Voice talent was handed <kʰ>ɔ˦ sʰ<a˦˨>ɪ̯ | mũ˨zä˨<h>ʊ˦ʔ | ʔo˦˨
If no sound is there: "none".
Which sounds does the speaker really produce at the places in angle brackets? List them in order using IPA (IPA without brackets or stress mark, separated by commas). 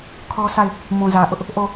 kʰ, a˦˨, ʔ